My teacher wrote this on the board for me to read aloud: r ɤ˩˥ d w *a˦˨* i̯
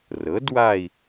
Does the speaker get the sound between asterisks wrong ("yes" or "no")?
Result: no